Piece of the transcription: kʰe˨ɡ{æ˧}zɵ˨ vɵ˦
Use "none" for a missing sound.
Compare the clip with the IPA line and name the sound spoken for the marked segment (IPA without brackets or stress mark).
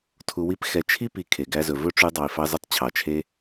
æ˧